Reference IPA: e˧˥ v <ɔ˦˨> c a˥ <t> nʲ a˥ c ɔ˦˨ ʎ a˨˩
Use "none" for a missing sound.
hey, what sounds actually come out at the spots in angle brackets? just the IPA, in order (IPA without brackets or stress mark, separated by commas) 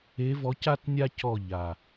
ɔ˧˥, t